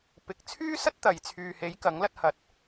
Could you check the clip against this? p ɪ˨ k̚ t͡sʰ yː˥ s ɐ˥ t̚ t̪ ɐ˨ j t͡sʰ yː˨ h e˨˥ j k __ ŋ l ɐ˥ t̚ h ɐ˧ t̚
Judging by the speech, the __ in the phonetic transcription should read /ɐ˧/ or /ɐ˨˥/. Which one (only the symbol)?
ɐ˨˥